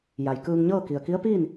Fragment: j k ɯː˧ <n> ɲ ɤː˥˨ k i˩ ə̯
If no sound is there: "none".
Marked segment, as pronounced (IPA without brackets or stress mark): ŋ